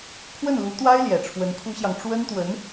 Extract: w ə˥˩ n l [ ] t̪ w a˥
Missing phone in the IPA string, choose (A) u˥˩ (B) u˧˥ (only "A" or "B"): B